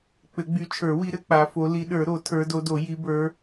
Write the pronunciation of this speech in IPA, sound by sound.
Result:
k͡p ɘ˨˩˦ ɡ͡b y˨˦ t͡ʃʰ ə˞˨˩˦ w i˨˦ ɾ ɘ˨˦ k͡p a˨˦ f o˨˦ l i˨˦ ɗ ə˞˨˩˦ ɾ o˨˩˦ tʰ ə˞˨˦ d o˨˦ d o˨˩˦ j i˨˦ b ə˞˨˦

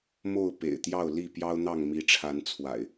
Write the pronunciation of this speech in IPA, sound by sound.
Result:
m o˥˨ ʊ̯ p ḛ˨˩ ɪ̯ t̪ j ɑ˥˨ ʊ̯ l i˥˨ p j ɑ˦ ʊ̯ n̪ ɑ˥˨ ŋ m i˨˦ ʈ͡ʂʰ a˨˦ n t͡sʰ w a̰˨˩ ɪ̯

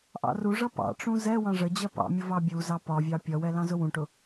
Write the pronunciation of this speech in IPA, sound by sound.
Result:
ʔ ɑ̰ r u ʐ ʌ p ɑ̰ ʈ͡ʂ ũ z ɛ w ɑ̃ ʐ ə d͡ʑ ɜ p ɑ̰ mʲ ʊ v ɑ bʲ u z ɑ p ɒ vʲ ɑ pʲ ʌ w ɛ l ɑ̃ z ʊ w ũ ʈ ʊ

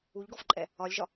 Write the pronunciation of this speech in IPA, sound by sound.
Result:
u ʎ ɡ ɔ f ǃʼ ɛ | ɒ lʲ ʒ ɒ

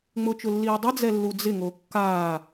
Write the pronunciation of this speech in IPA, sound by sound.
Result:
ŋ͡m ʊ t͡ʃ ʊ lː iː dˤ ɪ d͡z ɛ lː u d͡z ɪ ŋ o kː aː

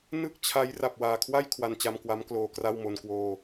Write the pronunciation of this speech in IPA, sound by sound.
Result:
n ɯ˥˩ k̚ t͡ɕʰ a˦˥ j r a˨˩ p̚ w aː˨˩ kʰ w a˥˩ j kʰ w a˧ n t͡ɕ a˧ m k w a˦˥ m k l oː˧ k r a˥˩ w m o˧ n k w oː˧

